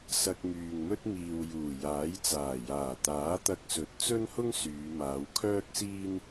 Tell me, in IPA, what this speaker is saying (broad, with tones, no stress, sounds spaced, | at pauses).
s ɐ˧ k̚ m yː˨ ŋ m ɵ˥ t̚ m iː˨ w j uː˨˩ j aː˨˥ j t͡s aː˨˩ j aː˨˩ t̪ aː˨˥ t̪ ɐ˧ k̚ s ɵ˨˥ t̚ t͡s ɵ˥ n h ʊ˥ ŋ s yː˨˧ m aː˨˧ w kʰ œː˥ k̚ s iː˥ n